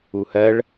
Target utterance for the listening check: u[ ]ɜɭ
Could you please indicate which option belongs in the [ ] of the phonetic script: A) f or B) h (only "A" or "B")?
B